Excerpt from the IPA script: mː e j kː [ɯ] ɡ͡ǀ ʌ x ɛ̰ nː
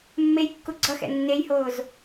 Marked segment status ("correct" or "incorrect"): incorrect